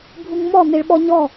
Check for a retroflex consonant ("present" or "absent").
present